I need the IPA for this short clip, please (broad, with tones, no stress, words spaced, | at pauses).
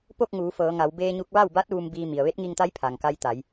po˥˨k̚ŋuː˩˧fɤː˩˧ŋa˩˧w beː˧ɲu˧k̚ ʋa˥˨wba˧˥t̚ ʋu˧mbiː˧ mi˩ə̯ʋe˧˥t̚ŋi˧ŋt̪a˧˥j pʰa˩ŋka˧jt̪a˩˧j